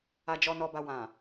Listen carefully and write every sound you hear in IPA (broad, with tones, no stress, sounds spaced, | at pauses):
a˨ d͡ʒ ɔ˧ n ɔ˧ b a˧ w ã˨